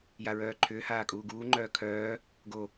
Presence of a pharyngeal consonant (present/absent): absent